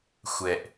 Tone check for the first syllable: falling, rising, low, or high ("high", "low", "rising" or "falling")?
low